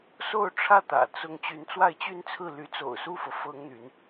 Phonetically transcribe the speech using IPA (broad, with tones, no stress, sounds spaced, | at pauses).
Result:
s o˥˧ ʊ̯ ʈ͡ʂʰ ä˥˩ t̪ ä̰˨˩ t͡s ʊ˧˥ ŋ t͡ɕ y˧˥ n t͡s w a˥˧ ɪ̯ t͡ɕ y˥˧ n t͡sʰ ɹ̩˥˩ l y˧˥ t͡s o̰˨˩ ʊ̯ s u˥˩ f ɤ˩ f ɤ˥ ŋ n̪ y˧˥ n